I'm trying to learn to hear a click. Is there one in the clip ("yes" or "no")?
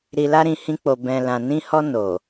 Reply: no